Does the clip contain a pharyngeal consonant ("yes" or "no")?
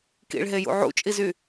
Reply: yes